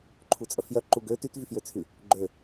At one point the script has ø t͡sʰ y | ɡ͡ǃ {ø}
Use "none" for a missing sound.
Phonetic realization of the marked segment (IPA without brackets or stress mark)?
ø